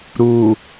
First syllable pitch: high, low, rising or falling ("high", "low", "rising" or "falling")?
low